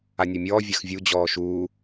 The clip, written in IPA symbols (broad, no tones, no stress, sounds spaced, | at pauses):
a nʲ ɔ mʲ ɔː vʲ a x vʲ u d͡ʑ ɔː ʃ uː